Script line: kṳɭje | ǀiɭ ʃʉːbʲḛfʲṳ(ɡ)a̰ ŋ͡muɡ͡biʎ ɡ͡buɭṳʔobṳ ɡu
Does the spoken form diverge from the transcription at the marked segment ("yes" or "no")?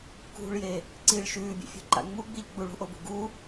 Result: yes